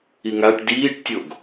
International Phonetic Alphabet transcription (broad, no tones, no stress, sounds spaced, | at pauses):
i ŋ a ʈ d iː ʈ tʲ o ɡ